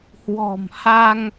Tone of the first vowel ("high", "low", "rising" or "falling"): low